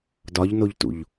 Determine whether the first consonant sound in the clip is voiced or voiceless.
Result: voiced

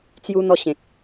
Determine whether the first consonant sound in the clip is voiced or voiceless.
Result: voiceless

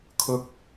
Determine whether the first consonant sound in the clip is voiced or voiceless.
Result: voiceless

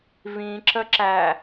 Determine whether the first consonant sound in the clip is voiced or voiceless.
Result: voiced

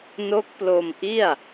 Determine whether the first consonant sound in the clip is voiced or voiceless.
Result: voiced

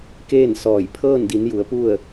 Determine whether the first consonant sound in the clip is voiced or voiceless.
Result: voiceless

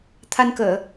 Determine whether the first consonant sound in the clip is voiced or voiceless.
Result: voiceless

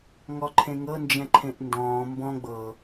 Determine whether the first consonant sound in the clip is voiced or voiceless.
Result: voiced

